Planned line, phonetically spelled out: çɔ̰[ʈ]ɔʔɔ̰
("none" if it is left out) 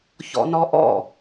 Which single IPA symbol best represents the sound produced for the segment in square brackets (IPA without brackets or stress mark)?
n